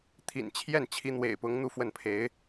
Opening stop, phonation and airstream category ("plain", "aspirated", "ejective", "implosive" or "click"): aspirated